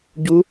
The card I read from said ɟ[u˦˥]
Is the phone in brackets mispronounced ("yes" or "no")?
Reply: no